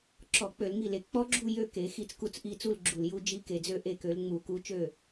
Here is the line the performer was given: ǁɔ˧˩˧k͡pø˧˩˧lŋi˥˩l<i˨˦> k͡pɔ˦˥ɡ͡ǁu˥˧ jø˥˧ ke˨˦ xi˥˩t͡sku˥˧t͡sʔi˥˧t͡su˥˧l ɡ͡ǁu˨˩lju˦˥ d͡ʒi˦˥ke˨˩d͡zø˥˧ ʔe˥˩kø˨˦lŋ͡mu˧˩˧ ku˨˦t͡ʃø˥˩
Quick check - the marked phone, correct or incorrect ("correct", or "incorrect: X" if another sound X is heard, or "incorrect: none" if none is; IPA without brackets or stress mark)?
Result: incorrect: e˨˦